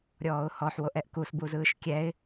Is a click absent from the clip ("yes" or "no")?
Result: yes